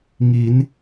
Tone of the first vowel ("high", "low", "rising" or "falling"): rising